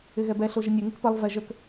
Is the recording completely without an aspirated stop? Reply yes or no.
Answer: yes